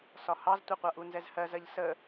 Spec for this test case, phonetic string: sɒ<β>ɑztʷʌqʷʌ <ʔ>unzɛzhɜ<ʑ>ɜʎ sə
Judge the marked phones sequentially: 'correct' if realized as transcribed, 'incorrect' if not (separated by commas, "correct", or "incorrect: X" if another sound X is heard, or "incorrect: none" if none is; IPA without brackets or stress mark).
incorrect: h, correct, incorrect: z